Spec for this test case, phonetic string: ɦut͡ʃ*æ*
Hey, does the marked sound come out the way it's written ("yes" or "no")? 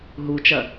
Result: no